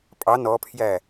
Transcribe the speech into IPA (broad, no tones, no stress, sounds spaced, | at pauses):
pʼ ɑ n ɔ pʰ j æ